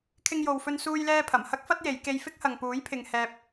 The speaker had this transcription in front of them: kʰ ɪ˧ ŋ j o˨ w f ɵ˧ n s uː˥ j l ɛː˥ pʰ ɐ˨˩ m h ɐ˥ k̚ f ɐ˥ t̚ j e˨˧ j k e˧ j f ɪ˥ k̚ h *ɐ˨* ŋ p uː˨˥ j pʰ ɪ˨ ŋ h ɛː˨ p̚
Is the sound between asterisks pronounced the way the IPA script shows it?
yes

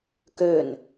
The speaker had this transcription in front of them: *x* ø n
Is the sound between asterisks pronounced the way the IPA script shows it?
no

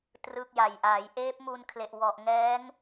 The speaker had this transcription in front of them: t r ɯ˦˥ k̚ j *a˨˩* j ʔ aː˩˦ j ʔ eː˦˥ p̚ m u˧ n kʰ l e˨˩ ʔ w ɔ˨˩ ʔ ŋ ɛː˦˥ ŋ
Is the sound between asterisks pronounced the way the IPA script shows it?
yes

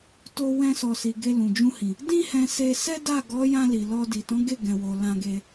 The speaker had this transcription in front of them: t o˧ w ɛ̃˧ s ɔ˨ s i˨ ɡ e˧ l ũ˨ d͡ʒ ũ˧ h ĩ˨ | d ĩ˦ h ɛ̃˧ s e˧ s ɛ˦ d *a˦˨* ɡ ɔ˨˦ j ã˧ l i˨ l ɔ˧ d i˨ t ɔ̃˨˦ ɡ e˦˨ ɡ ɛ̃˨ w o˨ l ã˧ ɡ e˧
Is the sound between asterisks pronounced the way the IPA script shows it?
yes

